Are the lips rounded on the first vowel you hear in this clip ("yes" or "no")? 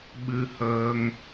no